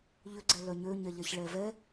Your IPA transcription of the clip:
ʎ ʏ ɡ͡ǀ ɛ l œ ɲ ø ɲ ɛ ʎ ɛ ç ɭ ɛ v ɛ

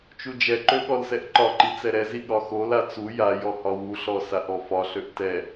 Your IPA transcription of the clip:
t͡ʃ u d͡ʒ ɛ ǃ ø ɠ ɔ l s ɛ ʔ ǃ ɒ ǃ i t͡s ɛ ɾ ɛ z i ɠ ɒ x o l a t͡s u j a j ɔ h ɒ w u ɬ ɔ s a ʔ ɔ f ɒ ɬ ø ʔ t ɛ

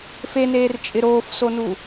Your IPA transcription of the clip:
f e n eː r t͡ʃʼ ɪ ɾ oː f s o n u

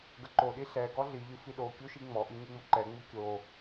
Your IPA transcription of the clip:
ɡ ə ǃ o ɗ i ɬ ɛ ɡ ɔ ɮ i ʎ ɨ f i ɗ o kʲ u ʃ i ŋ͡m ɔ ʔ i ɲ ɨ ŋ͡m o ǃ ɛ ŋ͡m u kʲ o

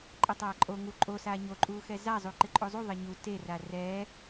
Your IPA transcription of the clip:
ǃʼ ɛ tˤ aː ǃʼ o ŋ u ǃʼ o s aː ɲ o ǃʼ uː x ɛ z a zˤ u ǃ ɪ ǃʼ o zˤ u ðˤ ɪ ɲ u t e r a r ɛː

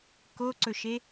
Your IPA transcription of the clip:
k o ǀ ɵ ʃ e

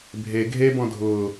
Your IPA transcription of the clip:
bʱ e ɡʱ e b ɔ̃ dʱ ʊː

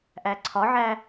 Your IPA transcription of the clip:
ʔ æ ǀʰ ɒ ʕ æ

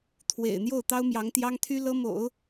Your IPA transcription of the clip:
t̪ʰ w ḛ˨˩ ɪ̯ n̪ j o˥˩ ʊ̯ t̪ ɑ˥ ʊ̯ m j ɑ˧˥ ŋ t̪ j ɑ˥ ŋ t̪ʰ y˥ l ɤ˥ m o̰˨˩˦ ʊ̯

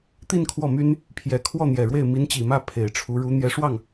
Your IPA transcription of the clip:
t̪ i˥˧ n kʰ w ɔ˥˩ m y˥ n | pʰ j ɛ˨˩ kʰ w ɔ˥˩ n̪ j ɛ˨˩ ɻ w e˥˩ ɪ̯ m i˧˥ n t͡ɕ i˨˩ m ä˥˩ pʰ e˨˩ ɪ̯ ʈ͡ʂʰ u˧˥ ɻ u˧˥ n̪ j ɛ˧˥ ʂ w ɑ˥˩ ŋ

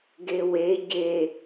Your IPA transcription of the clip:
ɡ e w e ɟ e

